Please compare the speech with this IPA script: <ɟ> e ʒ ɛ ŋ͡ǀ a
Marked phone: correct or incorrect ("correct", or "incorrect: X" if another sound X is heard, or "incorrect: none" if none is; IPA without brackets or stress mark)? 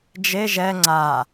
incorrect: d͡ʒ